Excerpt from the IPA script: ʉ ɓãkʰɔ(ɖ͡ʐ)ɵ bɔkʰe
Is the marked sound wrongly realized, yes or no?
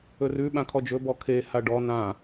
yes